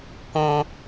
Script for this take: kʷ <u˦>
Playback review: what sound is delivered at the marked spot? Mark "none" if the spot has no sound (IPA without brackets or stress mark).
ũ˦